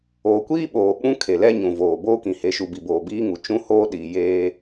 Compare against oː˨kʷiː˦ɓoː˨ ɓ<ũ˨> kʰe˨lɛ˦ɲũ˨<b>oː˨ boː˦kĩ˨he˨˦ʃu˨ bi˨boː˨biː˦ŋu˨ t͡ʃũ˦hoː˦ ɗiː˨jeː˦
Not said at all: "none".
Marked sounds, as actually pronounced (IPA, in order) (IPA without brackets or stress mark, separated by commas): ũ˦, v